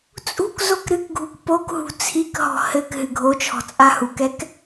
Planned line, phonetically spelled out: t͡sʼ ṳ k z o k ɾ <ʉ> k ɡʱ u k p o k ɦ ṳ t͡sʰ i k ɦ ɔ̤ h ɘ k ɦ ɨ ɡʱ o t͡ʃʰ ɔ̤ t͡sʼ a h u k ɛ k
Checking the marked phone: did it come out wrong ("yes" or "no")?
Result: yes